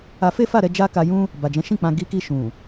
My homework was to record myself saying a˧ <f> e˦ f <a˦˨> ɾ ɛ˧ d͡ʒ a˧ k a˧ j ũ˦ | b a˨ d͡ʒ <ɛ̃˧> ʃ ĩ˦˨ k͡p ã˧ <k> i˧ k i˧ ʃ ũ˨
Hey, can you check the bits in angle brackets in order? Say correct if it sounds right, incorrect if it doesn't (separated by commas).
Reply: correct, correct, incorrect, incorrect